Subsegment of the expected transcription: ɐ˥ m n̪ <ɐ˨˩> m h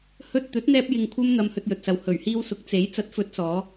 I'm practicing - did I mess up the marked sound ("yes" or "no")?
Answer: yes